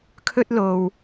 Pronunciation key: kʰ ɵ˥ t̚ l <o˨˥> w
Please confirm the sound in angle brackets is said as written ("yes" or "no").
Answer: no